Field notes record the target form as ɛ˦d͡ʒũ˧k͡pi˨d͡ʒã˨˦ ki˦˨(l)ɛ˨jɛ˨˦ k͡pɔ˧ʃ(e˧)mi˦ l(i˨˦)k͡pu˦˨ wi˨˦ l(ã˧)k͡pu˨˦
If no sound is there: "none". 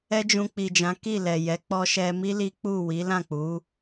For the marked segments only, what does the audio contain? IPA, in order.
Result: l, ɛ˧, i˦, ã˦˨

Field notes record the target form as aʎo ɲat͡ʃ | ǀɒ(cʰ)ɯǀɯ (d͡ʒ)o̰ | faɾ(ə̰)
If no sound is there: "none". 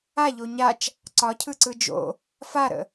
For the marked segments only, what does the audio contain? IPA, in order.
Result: cʰ, d͡ʒ, ə̰

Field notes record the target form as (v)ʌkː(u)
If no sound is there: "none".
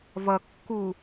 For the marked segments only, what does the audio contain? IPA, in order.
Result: v, u

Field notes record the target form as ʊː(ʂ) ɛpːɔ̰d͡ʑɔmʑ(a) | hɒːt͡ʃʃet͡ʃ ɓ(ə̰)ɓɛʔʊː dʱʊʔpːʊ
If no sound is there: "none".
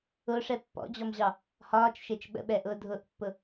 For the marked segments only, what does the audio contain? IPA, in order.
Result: ʂ, ɑ, ə̰

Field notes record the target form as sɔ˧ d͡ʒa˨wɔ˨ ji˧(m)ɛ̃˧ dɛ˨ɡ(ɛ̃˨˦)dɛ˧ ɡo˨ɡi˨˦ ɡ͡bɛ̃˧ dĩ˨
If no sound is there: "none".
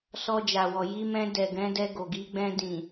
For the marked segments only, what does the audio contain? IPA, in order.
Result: m, ɛ̃˨˦

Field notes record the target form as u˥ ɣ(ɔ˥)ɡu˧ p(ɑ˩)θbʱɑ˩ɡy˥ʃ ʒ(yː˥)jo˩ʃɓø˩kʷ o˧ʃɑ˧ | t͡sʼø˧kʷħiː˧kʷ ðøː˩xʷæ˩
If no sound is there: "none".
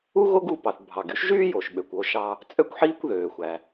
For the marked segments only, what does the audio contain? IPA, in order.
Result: o˥, ɑ˩, yː˥

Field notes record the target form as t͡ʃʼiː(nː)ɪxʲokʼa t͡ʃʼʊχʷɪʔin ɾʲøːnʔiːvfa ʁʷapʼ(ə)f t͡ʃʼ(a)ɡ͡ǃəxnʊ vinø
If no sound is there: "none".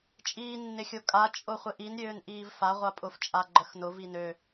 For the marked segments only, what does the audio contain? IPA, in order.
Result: nː, ʊ, a

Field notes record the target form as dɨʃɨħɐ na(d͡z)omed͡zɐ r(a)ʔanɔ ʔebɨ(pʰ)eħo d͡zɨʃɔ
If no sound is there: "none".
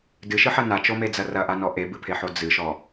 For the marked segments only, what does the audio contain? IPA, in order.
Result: t͡ʃ, ɐ, pʰ

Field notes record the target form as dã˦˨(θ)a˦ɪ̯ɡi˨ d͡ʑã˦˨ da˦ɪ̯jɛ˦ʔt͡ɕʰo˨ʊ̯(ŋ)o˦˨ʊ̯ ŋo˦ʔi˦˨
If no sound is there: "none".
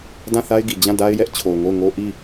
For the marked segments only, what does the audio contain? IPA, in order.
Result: θ, ŋ

